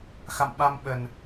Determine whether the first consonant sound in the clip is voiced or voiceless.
voiceless